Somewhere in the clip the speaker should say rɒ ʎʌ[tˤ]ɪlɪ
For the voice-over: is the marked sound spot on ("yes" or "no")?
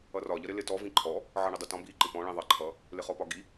no